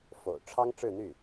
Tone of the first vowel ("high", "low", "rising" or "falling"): low